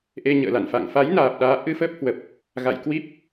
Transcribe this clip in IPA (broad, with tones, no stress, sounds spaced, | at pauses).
ʔ e˧ ɲ ə̰ː˧˨ l a̰˧˨ n f a̰˧˨ ŋ f a˨˦ j n aː˨˩ p̚ ɗ aː˨˦ ʔ ɨ˧ f əː˦˥ p̚ h w ə˨˩ p̚ | ɣ a̰˧˨ j k w i˦˥ p̚